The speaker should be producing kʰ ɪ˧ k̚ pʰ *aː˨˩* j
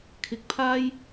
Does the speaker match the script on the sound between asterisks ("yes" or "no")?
no